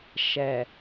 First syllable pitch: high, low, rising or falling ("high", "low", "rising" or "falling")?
low